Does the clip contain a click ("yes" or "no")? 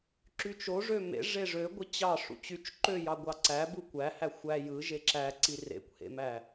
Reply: yes